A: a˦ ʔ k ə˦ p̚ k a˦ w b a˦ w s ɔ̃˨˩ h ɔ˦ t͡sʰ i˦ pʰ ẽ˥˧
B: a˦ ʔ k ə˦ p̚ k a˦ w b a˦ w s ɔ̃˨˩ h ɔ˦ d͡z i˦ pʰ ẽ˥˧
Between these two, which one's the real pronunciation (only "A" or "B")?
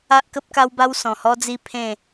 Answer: B